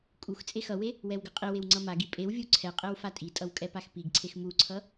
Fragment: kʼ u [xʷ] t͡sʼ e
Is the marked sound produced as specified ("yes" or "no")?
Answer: no